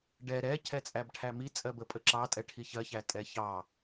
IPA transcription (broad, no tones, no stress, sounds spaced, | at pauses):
ɖ ɛ ɾ ɛ cʰ ɛ t͡sʼ æ b ʈʰ æ m i t͡sʼ ɜ b ə pʼ ə ǁ ɑ tʼ ɛ ʈʰ i ç ɜ ç æ tʼ ɛ ç ɑ